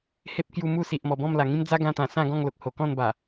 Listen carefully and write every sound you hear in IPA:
h e˦ p̚ k j u˧ m u˥˧ s i˨ ʔ m ɔ˨˩ b ɔ̃˥˧ m l a˨˩ ŋ ĩ˦ m d͡z a˦ ɡ ã˧ t̪ ã˨˩ s ã˥˧ ɡ ɔ̃˥˧ ŋ l o˨ k̚ h o˨˩ k ɔ̃˥˧ n b a˨˩

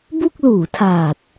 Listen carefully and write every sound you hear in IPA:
b u˥˩ k̚ l uː˩˦ tʰ aː˨˩ t̚

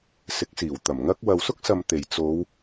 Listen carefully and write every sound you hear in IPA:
s ɪ˨˥ k̚ s iː˨˩ w t̪ ɐ˨˩ m ŋ ɐ˥ k̚ w ɐ˨ w s ʊ˥ k̚ s ɐ˨ m t̪ e˨˩ j t͡s o˨˧ w

